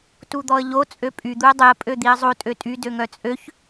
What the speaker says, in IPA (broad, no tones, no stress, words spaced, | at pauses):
tud̪ɔə̯ʎo t͡sʼøpʼy d̪uə̯dˤeə̯ pʼød̪iə̯zˤo tʼøtʼy døŋœt͡sʼøç